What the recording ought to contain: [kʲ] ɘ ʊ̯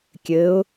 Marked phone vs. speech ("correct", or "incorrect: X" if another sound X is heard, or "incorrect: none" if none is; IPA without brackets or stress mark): correct